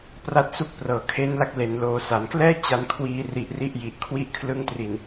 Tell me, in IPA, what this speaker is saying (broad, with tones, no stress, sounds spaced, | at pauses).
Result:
p r a˦˥ t̚ s u˦˥ k̚ p r ɤː˩˦ kʰ eː˦˥ n l a˦˥ k̚ l e˩˦ n l oː˩˦ s a˩˦ n k l ɛː˥˩ t͡ɕ a˧ n kʰ w iː˧ r i˨˩ ʔ r i˥˩ ʔ j i˨˩ ʔ kʰ w i˦˥ ʔ kʰ l ɯ˦˥ ŋ t r i˨˩ n